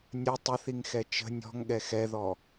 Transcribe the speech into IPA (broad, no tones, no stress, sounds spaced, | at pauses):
nʲ ə tˤ ə θ i ŋ x ɛ t͡ʃ ə̤ nʲ ɔ̤ ŋ ɠ ɛ x ɛ ð ɔ